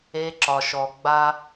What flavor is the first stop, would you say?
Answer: click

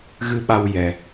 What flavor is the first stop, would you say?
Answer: implosive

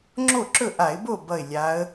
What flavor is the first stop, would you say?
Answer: click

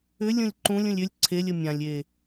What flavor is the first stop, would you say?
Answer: click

